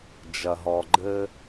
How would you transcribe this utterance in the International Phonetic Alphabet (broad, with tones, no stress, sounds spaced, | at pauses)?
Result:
d͡ʒ ɐ˨ ɦ ɔ˨ ɡ͡ǃ ɘ˦